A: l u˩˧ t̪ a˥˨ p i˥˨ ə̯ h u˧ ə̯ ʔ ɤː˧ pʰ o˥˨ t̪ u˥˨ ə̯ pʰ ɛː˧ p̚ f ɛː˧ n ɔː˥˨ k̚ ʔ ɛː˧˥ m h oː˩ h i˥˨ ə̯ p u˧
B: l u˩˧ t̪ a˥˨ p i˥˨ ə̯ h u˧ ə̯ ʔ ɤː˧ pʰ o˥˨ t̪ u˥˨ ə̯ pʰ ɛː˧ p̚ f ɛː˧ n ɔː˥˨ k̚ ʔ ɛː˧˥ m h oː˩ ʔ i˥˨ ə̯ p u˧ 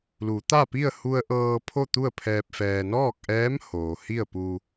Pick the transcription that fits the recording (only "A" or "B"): A